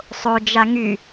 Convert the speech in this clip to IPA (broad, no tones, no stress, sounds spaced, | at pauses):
sˤ o d͡ʒ a ŋ y